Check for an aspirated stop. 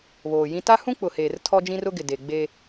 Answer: present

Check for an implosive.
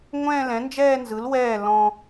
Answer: absent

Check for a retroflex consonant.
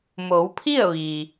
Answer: absent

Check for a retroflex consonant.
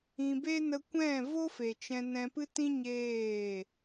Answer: absent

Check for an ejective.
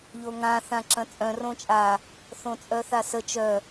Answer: present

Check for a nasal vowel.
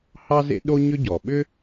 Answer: absent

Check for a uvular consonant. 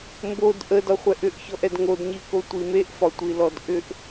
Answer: present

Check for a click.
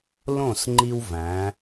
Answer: present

